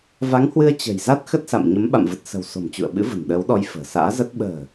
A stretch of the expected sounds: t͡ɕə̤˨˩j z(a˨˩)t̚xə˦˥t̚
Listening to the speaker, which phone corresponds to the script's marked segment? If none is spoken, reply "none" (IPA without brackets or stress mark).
a˦˥